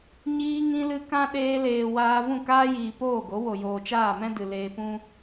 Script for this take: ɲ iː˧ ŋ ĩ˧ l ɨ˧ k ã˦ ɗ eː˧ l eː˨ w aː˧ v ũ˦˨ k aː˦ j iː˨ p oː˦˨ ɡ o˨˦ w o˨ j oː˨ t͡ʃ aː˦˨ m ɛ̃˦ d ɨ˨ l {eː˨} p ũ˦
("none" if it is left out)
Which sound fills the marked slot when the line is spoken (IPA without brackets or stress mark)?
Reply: eː˧